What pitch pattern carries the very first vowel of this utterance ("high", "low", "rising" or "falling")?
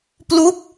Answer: falling